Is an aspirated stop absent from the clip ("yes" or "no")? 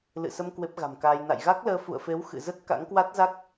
yes